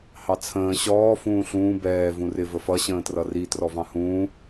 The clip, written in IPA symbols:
h ɑ t͡sʰ ə̃ː ɕ ɔː f ũː ɬ ũː b ɛː v ũ r ɪ v ə f ʌ ɕ ə̃ː t r ʌ r i t r ɔ v ɑ̃ h ũː

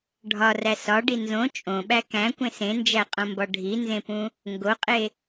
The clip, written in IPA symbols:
ɖʱ ɒ r æ s ɒ ɖ i n z õ t͡ʃʼ õ ɓ æ k æ̃ kʷ ẽ s ẽ n d͡ʒ æ qʼ õ m b ɒ ɖʱ i n z ẽ p ũ | ŋ ɡ o qʼ e

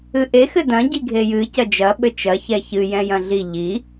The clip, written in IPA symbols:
ɨ ʔ e x ɘ d ɐ̃ ɟ i ɡʱ e j ɨ c ɐ d͡ʒ ɐ ɓ ɘ t͡ʃ ɐ ç ɛ ç ɨ j ɛ̃ j ɐ̃ ɮ i ʎ i

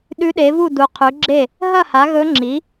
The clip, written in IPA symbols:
ɗ ʉ˧˥ ɗ e˩˥ v u˥˩ d u˩˥ qʰ ʉ˩˥ ɡ͡ǁ e˥˩ | ɦ ɐ˥˩ h a˩˥ ɣ ɵ˧˥ ŋ͡ǁ i˩˥

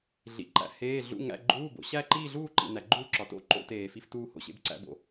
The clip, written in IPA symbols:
ɮ ḭ˨ ǃ æ̰˨ h eː˧˥˧ ɮ ṵ˧˥˧ ŋ æ̰˧˥˧ ɡ͡ǃ uː˧˥˧ b o̰˨ ɕ æ˥˧ ǃ iː˥˧ ɮ uː˥˧ ǃ ḭ˨ n æ˨ ɡ͡ǃ uː˥˧ ǁ ɒ˨ t o̰˧˥˧ ǃ o̰˧˥˧ t eː˨ f i˧˥˧ f t uː˥˧ h o̰˧˥˧ ɕ ḛ˧˥˧ b ǀ æ̰˧˥˧ b o̰˨

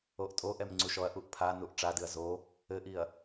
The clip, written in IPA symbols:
o ʔ tʼ o ʔ ɛ m ŋ͡ǀ u ʃ ɔ ɐ̯ ʔ u ʔ pʰ a n u ʔ ʈ͡ʂ a d ɨ ɐ̯ z o | ɘ ʔ i ɐ̯

